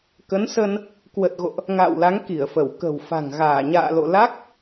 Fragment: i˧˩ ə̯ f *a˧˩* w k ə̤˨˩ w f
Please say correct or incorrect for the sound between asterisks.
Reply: incorrect: ə˧˩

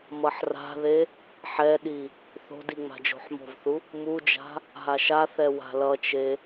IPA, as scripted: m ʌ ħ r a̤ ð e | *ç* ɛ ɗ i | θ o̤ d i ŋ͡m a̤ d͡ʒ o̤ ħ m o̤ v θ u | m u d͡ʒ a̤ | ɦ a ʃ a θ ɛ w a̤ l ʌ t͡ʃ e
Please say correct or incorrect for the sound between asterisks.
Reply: incorrect: ħ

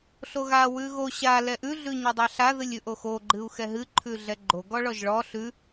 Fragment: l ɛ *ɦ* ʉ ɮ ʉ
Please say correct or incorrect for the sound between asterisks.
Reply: incorrect: ʔ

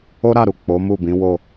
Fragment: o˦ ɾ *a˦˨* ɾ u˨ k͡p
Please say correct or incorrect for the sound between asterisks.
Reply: correct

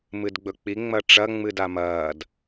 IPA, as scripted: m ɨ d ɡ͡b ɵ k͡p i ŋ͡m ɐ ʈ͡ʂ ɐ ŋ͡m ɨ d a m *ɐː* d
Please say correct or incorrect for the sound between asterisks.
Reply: correct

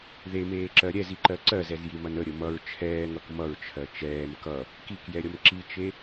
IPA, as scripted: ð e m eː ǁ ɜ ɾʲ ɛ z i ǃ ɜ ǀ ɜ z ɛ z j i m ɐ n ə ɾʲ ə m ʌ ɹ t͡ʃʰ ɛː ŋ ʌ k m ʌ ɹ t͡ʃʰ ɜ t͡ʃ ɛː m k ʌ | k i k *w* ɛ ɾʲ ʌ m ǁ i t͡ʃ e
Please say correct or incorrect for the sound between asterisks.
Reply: incorrect: j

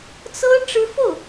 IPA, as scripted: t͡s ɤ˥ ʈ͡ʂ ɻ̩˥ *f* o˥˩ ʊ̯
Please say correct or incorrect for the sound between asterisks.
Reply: correct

